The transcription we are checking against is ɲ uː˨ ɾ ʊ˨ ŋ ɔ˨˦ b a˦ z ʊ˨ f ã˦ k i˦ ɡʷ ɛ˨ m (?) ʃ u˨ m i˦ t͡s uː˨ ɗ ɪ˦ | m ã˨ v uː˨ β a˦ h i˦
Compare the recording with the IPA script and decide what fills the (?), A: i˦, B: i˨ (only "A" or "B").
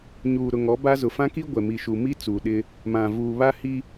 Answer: B